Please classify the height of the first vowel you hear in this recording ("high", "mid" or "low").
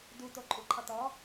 high